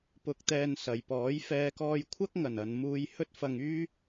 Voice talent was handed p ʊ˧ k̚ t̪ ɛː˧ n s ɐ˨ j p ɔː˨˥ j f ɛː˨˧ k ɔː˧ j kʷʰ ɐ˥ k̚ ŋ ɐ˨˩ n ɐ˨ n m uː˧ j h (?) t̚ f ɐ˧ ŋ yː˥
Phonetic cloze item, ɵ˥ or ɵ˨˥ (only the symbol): ɵ˥